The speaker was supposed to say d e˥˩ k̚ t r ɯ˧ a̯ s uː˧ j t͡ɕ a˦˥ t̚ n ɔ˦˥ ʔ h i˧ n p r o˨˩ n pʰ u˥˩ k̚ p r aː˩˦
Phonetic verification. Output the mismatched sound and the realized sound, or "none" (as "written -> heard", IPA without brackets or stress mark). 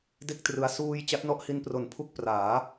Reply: none